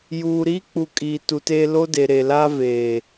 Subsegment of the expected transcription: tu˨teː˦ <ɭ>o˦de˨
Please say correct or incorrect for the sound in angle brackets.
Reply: incorrect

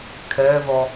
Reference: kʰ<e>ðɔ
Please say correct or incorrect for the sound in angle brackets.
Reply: incorrect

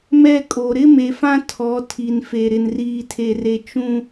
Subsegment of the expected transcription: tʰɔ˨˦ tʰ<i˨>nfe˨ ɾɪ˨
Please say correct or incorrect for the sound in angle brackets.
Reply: correct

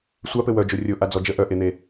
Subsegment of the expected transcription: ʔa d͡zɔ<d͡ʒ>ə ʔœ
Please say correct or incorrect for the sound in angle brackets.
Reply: correct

